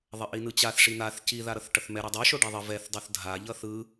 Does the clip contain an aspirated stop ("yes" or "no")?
no